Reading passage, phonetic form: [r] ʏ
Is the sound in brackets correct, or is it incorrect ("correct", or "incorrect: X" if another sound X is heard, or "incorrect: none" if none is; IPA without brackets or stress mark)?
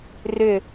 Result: correct